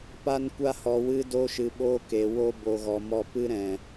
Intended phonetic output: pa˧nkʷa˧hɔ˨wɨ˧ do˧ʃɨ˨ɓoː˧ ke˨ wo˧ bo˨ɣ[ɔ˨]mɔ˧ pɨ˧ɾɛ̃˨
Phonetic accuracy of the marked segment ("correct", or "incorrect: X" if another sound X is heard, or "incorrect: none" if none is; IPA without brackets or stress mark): correct